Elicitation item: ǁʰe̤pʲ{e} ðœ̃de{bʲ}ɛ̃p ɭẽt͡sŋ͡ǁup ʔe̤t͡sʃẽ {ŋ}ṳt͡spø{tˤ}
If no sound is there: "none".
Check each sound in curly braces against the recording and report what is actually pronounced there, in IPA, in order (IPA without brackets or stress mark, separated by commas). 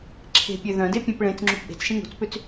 ø, pʲ, ŋ, t͡s